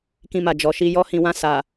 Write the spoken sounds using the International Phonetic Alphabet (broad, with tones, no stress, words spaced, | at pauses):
kĩ˧ma˨ d͡ʒɔ˨ʃi˧ jɔ˧hĩ˨wã˧ sa˨